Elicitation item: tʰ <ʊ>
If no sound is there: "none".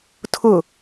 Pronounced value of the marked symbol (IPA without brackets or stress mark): ʊ